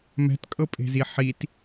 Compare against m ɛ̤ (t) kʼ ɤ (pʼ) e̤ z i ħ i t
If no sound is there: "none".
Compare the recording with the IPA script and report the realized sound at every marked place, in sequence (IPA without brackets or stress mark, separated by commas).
t, pʼ